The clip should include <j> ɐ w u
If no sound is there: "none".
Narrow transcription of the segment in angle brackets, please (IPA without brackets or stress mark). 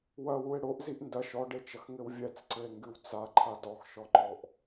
w